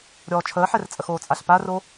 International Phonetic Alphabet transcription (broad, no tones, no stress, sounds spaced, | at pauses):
ɾʲ ɔː t͡ʃʰ əː ħ ɛ r t͡sʼ ə x oː t͡sʼ a ɬ p a r o